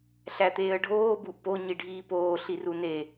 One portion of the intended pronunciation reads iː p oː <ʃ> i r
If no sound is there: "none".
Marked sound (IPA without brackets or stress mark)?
ɬ